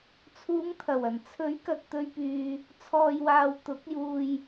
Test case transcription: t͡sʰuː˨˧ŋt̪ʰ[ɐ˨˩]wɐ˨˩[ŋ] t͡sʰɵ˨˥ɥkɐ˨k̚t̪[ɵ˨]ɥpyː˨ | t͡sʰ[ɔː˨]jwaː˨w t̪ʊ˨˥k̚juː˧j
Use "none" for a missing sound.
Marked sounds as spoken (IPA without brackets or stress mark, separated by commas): ɐ˨˩, n, ɵ˨, ɔː˨